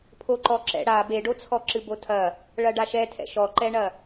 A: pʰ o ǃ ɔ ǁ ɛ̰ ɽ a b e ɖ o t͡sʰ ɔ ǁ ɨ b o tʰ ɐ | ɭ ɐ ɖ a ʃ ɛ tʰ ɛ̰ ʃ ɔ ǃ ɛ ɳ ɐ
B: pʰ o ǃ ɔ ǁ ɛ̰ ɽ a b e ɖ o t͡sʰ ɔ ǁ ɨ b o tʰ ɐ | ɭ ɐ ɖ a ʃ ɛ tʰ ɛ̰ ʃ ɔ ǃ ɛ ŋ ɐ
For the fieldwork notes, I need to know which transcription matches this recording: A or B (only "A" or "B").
A